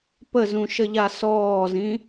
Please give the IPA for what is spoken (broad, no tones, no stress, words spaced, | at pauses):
pəzũʃəʎa sɔːzĩ